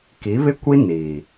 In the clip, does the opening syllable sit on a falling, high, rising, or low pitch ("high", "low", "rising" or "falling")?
rising